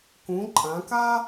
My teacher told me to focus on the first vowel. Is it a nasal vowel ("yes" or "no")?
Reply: yes